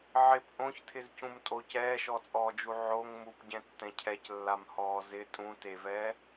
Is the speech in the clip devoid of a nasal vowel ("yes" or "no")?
no